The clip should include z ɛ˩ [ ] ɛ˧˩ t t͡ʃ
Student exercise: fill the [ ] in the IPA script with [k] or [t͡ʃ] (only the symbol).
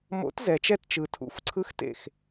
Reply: t͡ʃ